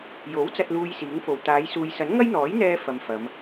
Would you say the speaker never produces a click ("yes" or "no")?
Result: yes